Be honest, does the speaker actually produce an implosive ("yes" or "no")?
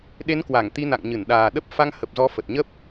yes